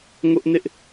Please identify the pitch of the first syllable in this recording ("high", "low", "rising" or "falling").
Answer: high